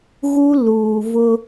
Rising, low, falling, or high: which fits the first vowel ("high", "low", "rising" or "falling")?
high